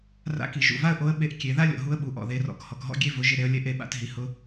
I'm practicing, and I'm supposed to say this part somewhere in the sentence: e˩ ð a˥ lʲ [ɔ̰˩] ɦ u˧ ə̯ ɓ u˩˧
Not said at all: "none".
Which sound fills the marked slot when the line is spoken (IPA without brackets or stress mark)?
ɔ̰˩